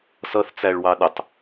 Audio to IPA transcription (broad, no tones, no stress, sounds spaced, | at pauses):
s ʌ θ t͡s æ ɭ w ɑ ɗ ɪ tˤ